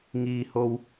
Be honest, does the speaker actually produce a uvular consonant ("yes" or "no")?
no